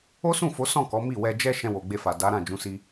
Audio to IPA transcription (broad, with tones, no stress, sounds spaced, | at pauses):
o˦ s ũ˦˨ f o˨˦ s ɔ̃˦˨ k ɔ˨˦ m i˦˨ w ɛ˧ d͡ʒ ɛ˦ ʃ ɛ̃˧ w o˨ ɡ͡b e˧ f a˨ d a˨˦ ɾ ã˦˨ d͡ʒ ũ˨˦ s i˦